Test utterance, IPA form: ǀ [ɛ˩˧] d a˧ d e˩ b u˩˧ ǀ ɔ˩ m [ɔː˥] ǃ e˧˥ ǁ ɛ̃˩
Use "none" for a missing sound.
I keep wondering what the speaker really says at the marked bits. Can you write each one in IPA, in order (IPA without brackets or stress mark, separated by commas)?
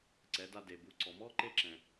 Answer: ɛ˩˧, ɔː˥